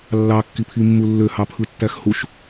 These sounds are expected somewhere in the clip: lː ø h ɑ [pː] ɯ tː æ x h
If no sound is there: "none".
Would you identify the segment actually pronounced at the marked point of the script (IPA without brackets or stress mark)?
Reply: pʰ